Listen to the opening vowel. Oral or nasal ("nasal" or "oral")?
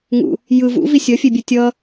oral